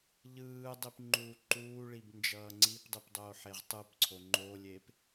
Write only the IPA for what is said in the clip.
ʎɯːdˤip ŋ͡ǃuːǃuːɭib nd͡ʒʌːŋ͡ǀipdˤip dˤoːħeʁtˤɯpǀʰo ŋ͡ǃolʲep

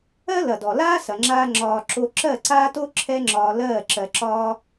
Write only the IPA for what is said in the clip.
ɜ˦lɐ˨dɔ˨ laː˦sɐ˨ŋ͡ǁaː˧ ŋ͡ǁɒː˧ǁo˦ ǁɜ˦˨ǀaː˦to˦ ǁʰɛ˦ŋ͡ǁɒː˧lɜː˦˨ ǁɜ˧ǁɒː˦

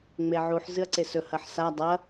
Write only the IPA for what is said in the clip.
ŋ͡meʕuħ zɨɐ̯ǀesɵ hɐħsa dˤɐ

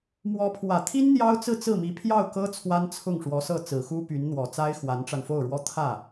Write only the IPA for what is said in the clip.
mwɔ˧˥pʰwä˨˩t̪ʰi˥n n̪jɑ˥ʊ̯t͡sɹ̩˥˧t͡sɹ̩˥˩mi˧˥ pʰjɑ˥˩ʊ̯kɤ˥ t͡sʰwa˥nt͡sʰʊ˥˩ŋʂwɔ˧˥ sɤ˥˩t͡sɹ̩˨˩xu˥ py˧˥nn̪wɔ˨˩t͡sa˥ɪ̯ xwa˧˥nʈ͡ʂa˧nfo˥˩ʊ̯ɻwɔ˥ t̪ʰä˥˩

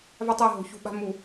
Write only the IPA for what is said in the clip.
va˦tˤa˦˨ ɦo̤˨çṳ˦ɓa̤˦ mu˨

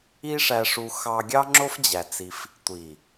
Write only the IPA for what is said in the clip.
i˦ʂæ˧ʂu˧ xɑ˧ɡʲɑ˦ŋ͡ǁo˦fd͡ʑæ˨ t͡si˧f | tʷi˨

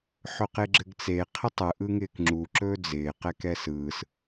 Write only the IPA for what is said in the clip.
ħɵqeɡ͡ǁɘɡt͡se qʰɪtˤɯ ʔɯŋɪːkŋ͡ǁu ǁɵːd͡zɪː qɛkɛsɯːs

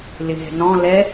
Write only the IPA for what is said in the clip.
lɪɦɛ̤nɔ̃ lɛ

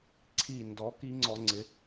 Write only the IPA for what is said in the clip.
ǀʰi˨˩ndɔ˩˧ ki˦˥ŋ͡ǀɔ˧ŋ͡ǀɪ˨˥

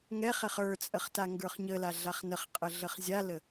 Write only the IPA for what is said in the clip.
ŋɛχ ɛχə˞t͡sʼəχ taŋɡə˞χɲəla ɮaχnəχqʼə ɮəχzʲalə

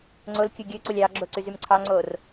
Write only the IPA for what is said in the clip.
ŋ͡ǀolkʲu ɡʲɯǀulʲ ɑɡ͡ǁoǀyzym ǀʰɑŋ͡ǀor

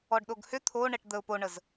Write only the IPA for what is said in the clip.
ɔɖɗoɡhʏ t̪ʰoɳɛʈ d̪əʊ̯ poɳəz

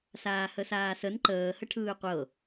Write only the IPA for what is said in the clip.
saːhəsaːsən ǃəː həʈʰɯːqʷɤ

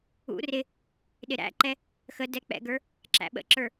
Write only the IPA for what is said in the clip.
ṵ rɪ | ɗɪɾæ̰ǃɛ | xə dɛk͡pɛ̰ɡə˞ | ǁæ̰ɓə̰ǁə˞

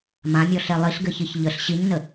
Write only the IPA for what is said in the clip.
mãmʲɔɬɛ lˠiɬɡɘçiç ʎəɬ ɕiɲnə

